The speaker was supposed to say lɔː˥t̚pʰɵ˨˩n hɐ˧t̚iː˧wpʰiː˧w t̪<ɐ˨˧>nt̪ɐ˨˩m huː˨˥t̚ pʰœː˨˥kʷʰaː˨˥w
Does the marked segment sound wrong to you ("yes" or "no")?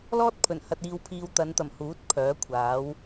no